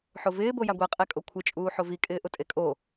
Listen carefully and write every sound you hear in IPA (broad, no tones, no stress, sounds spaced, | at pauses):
ħ o v ɪː b o j a ɡʷ e qʼ e kʼ o kʷʰ ɪ t͡ʃʼ uː ħ o v i kʼ ɪː ʔ ʊ tʼ e kʼ o